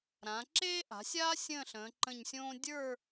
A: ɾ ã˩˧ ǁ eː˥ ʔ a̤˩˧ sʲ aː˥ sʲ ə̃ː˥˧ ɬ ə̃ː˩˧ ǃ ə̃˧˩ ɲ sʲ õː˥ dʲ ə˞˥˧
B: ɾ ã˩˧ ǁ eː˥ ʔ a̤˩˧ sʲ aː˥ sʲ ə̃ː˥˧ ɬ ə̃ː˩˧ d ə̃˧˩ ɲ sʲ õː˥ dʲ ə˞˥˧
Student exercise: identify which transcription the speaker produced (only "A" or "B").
A